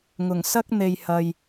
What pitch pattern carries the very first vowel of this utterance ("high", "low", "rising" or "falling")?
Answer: low